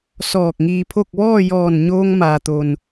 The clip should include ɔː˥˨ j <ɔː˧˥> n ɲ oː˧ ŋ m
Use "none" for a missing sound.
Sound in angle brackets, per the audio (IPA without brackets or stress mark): ɔː˧˩